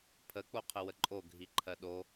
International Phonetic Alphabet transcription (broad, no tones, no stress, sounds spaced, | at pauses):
pʰ ə k͡p o qʰ ə w ə ǃʼ o ɡʱ i ǃʰ ɜ ɗ o